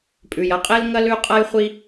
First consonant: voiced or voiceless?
voiceless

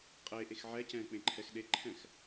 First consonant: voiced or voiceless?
voiceless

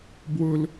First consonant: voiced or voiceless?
voiced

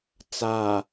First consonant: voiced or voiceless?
voiceless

